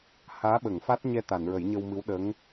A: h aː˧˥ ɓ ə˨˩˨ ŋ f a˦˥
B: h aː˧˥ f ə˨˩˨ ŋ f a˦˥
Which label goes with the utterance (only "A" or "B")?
A